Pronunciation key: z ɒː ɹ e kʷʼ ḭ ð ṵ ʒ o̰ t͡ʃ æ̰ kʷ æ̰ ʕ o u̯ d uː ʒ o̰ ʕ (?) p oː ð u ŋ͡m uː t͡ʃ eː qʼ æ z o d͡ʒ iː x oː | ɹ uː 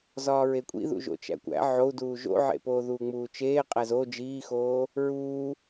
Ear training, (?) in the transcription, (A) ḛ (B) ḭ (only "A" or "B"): A